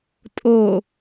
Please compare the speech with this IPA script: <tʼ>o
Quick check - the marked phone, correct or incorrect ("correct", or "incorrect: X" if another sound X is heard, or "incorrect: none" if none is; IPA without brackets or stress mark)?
correct